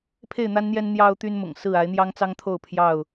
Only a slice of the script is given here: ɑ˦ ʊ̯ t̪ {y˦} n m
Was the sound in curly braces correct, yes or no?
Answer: yes